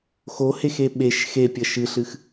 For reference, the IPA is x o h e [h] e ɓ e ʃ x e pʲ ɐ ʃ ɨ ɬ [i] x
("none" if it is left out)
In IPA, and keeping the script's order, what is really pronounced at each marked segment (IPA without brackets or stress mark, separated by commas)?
x, ɨ